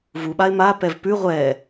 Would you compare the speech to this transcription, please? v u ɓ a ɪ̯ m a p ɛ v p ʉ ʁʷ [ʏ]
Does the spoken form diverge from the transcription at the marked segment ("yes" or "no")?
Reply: yes